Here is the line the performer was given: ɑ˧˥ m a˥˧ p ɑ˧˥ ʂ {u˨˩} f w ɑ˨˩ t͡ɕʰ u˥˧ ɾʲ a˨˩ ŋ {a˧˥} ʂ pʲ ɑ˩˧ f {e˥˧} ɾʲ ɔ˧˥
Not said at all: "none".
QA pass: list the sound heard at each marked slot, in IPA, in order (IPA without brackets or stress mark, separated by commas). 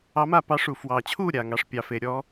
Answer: u˨˩, ɑ˧˥, e˩˧